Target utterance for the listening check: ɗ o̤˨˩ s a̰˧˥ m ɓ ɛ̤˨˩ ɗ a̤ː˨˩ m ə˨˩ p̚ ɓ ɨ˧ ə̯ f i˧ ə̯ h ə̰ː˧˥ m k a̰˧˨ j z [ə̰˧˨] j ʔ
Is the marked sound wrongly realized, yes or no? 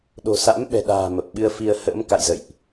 no